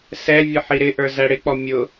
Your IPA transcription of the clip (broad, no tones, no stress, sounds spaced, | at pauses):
s ɛ vʲ ə ħ i ɾ ɪ ʔ ə˞ z æ ɽ ɪ k͡p ɔ mʲ ʊ